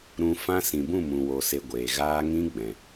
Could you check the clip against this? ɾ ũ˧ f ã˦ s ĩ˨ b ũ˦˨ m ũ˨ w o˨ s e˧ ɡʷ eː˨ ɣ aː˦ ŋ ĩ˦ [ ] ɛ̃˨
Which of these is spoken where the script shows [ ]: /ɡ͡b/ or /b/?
ɡ͡b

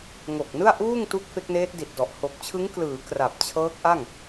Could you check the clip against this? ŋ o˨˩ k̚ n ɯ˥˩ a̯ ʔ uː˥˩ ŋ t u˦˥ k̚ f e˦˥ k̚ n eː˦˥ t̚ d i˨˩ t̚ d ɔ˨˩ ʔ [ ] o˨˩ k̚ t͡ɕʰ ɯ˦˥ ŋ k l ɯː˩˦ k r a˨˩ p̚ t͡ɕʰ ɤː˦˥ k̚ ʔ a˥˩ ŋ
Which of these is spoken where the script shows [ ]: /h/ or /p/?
h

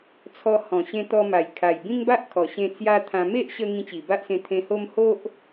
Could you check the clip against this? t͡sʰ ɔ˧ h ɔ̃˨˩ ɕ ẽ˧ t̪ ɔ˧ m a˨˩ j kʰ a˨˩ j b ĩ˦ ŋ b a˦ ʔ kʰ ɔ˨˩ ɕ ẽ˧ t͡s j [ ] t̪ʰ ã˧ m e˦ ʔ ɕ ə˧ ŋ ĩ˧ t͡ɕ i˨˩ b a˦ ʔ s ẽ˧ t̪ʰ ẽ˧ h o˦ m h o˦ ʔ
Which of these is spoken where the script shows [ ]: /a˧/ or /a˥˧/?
a˧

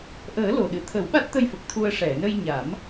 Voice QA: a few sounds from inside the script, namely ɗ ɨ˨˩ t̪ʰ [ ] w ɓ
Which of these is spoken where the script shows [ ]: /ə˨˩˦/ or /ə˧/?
ə˨˩˦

